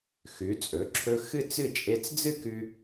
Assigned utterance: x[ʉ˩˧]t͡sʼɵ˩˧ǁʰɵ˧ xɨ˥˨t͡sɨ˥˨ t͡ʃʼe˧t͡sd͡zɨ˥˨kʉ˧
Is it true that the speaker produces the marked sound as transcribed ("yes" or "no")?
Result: yes